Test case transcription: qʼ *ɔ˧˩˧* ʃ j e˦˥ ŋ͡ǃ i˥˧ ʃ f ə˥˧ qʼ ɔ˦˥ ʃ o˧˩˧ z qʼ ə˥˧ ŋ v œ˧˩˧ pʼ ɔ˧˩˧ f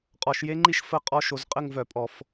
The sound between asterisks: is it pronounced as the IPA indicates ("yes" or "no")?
yes